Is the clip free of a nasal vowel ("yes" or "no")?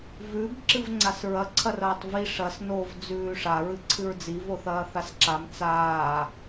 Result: yes